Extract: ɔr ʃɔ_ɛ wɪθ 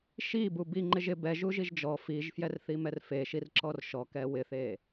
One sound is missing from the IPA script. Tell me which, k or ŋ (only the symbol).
k